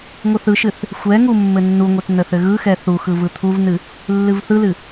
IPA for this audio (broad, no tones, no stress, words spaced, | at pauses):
ŋʷɯθɯʃɨθ | xʷɛŋu mːɘnːuŋʷɛt nəθɘɣɯxɛ θuxɯ vɯt̪ʰuvnɨ | lːɨvθɯlɨ